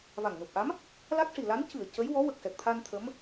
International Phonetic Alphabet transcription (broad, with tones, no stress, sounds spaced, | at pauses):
v a˨˩ ŋ n u˨˩ p̚ ʔ a˧˥ m | l a˦˥ k̚ ʂ i˨˩ l a˧˥ n c ɨ˨˩˨ ə̯ c ə˧˥ j w ɔ˧˥ w ə˨˩ k̚ s ɛ˨˩ k̚ t̪ʰ a˧ n t̪ʰ ə˧˥ m